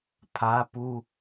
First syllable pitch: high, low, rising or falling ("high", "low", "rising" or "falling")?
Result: high